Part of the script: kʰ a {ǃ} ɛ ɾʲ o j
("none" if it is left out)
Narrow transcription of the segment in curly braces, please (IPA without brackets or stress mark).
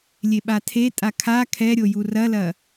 kʰ